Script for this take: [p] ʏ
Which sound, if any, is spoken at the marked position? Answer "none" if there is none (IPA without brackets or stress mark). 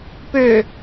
p